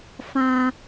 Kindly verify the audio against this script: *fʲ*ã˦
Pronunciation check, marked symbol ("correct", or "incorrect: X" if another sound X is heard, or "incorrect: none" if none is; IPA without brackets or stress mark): incorrect: f